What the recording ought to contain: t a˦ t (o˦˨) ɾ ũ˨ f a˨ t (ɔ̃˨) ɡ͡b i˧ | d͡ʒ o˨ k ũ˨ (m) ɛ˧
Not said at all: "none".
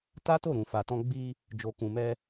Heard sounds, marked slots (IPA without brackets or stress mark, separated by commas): o˦˨, ɔ̃˧, m